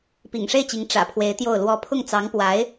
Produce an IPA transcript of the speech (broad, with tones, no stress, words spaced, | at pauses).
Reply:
pḭ˨˩ŋʂe˥˩ɪ̯t͡ɕi˧˥ŋ ʈ͡ʂä̰˨˩pʰwe˧˥ɪ̯ t̪jo˥˩ʊ̯lwɔ˥ pʰʊ˥˩ŋt͡sɑ˧˥ŋpwa˧˥ɪ̯